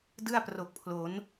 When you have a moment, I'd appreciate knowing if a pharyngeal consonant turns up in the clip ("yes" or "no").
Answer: no